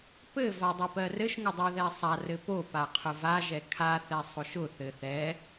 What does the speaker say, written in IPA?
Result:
pɘ vadˤʊpɜrɘʃ ŋʊdˤɛðɛsˤa rɘpo paqʰʊva ʒɛkʰa θɛsˤʊʃʊ θɘθɛ

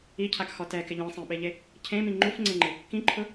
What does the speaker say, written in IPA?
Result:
icʰakxɔ tɛkɪ ʎĩsˤẽɓeʎe | cʰẽmĩ ŋ͡ǃufŋ͡ǀẽŋ͡ǃɪ | kĩǃʰʊ

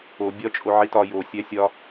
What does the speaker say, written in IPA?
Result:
o bʲɒ t͡ʃʼoʕitɒ jo sʲæsʲɒ

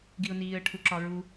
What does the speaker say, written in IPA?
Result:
ɡiʊ̯niːə̯ ʈʰuǁɒɹu

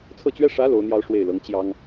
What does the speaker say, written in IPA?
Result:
t͡sʰɤ˥˩t͡ɕɥɛ˥ ʂä˧˥ lo˧˥ʊ̯n̪jɑ˥ʊ̯ʂwe˥˩ɪ̯lɤ˧˥ŋ t͡ɕjɑ˥ŋ

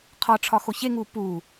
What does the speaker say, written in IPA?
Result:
qʰɒʈ͡ʂʰɒxo çeŋu pu

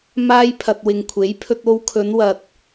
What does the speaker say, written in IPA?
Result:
maː˧jpʰɐ˨t̚ wɪ˨ŋkʷʰe˨˥jpʰɵ˧t̚ o˧wkʰɵ˨˧nwɐ˨t̚

